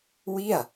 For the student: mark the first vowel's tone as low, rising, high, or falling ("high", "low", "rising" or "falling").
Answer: falling